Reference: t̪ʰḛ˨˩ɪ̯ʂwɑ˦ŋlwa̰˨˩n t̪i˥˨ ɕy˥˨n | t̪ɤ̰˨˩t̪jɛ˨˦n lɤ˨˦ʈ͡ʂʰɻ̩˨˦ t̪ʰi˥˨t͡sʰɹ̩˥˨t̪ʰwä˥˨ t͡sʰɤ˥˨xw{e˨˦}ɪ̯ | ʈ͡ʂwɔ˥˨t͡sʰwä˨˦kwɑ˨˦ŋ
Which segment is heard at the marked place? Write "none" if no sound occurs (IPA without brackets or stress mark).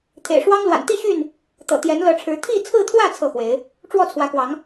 e˨˦